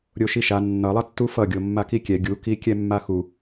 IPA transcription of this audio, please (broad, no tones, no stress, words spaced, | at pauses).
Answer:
ɾʲoʃiʃa nːʌlˠʌtːu fʌɡʲo mːakikʲɛ ɡʲuki kʲɛmːaxu